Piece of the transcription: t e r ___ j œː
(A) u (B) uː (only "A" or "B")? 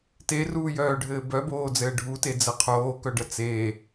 B